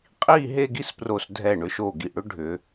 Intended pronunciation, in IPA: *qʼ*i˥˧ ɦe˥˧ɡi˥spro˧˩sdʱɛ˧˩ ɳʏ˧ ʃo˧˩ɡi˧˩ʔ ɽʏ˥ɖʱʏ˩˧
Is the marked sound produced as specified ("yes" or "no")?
yes